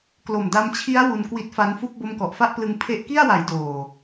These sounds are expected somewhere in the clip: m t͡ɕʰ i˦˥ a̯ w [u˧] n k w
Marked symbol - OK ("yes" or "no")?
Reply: yes